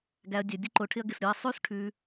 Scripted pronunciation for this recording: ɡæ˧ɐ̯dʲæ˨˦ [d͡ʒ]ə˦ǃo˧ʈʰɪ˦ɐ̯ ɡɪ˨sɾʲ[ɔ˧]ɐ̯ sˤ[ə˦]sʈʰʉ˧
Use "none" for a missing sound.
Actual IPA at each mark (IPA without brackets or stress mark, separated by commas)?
dʲ, ɔ˧, ʉ˦